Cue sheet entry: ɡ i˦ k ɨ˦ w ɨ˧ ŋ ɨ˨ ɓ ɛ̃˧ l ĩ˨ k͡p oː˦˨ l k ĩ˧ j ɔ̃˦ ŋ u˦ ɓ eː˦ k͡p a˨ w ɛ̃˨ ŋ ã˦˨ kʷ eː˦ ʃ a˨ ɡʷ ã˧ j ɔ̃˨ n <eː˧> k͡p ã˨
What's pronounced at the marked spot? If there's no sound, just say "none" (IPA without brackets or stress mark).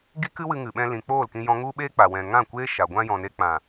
e˧